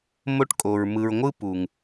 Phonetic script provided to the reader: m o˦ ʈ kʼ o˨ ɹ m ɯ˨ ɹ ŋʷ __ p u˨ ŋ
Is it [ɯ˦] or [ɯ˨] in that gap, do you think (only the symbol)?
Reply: ɯ˦